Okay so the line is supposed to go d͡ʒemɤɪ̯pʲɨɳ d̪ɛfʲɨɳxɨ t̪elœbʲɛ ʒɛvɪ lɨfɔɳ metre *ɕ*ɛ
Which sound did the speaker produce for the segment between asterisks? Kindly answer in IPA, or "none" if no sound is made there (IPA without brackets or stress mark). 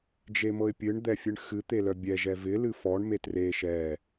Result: ʃ